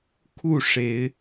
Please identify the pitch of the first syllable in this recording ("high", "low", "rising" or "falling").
falling